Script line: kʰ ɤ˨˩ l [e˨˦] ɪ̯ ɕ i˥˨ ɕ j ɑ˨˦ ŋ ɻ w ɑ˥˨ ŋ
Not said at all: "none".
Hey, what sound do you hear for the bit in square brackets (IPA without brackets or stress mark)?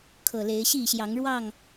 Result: e˨˦